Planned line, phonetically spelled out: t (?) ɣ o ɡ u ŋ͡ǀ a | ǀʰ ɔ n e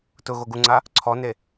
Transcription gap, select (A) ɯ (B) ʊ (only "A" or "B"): B